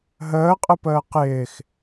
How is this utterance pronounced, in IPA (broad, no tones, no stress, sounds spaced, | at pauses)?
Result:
ɦ əː qʼ ə p əː q ɪː x